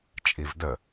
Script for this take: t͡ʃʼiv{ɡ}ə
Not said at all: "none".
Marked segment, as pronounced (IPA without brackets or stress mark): d